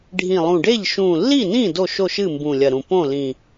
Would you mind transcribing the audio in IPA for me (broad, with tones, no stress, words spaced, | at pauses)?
ɖʱĩ˨˩lˠũ˨˩ɖe˥˩ʎ ʃũ˨˩lːi˥˩nĩ˥˩ do˥˩ʃo˥˩ʃ ɨ˥˩mbũ˨˩lʲɐ˨˩ ɾũ˨˩ põ˥˩lĩ˨˩